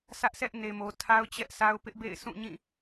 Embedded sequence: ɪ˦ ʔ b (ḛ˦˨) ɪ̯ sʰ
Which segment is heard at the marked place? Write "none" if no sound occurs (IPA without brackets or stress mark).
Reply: ḛ˦˨